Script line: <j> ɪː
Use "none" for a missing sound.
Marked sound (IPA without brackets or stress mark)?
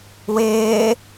w